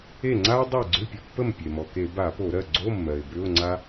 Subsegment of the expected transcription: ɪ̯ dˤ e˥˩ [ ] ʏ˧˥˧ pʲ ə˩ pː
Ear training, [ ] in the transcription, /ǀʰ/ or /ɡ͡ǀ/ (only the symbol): ɡ͡ǀ